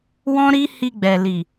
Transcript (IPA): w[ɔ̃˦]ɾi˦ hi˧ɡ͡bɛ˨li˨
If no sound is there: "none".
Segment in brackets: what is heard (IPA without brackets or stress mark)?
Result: ɔ̃˦